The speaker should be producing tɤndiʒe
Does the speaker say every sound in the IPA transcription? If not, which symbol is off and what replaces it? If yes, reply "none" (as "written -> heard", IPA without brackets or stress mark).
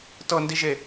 none